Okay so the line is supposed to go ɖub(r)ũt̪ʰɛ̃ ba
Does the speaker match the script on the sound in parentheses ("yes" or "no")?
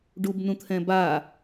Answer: no